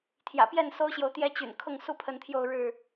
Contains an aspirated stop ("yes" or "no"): yes